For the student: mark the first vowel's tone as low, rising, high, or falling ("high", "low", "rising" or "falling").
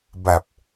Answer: low